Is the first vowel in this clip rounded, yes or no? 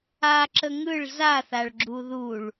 no